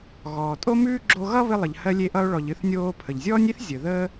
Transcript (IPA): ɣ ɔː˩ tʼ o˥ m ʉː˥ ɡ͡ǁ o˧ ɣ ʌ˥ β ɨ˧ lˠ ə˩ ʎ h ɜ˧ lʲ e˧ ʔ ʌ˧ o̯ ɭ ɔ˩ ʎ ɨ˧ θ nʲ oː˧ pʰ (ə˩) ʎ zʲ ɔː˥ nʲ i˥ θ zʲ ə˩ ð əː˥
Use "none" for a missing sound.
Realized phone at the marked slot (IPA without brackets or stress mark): ə˩